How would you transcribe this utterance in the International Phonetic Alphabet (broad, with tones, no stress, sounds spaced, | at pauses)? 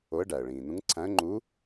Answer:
o˧˥ ə̯ ɖ æ˩ ə̯ ɭ ĩː˩ n ũ˧˥ ŋ ǀʰ æ̃˧˥ ə̯ ŋ͡ǃ uː˧˥